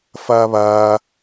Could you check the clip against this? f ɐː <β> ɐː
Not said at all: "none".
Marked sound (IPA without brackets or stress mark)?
β